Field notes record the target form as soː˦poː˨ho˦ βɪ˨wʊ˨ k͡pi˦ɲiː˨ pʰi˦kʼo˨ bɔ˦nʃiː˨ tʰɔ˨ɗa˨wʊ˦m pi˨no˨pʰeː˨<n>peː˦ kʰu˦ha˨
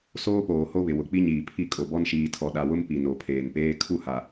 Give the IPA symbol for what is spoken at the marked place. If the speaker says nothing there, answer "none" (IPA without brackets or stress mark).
n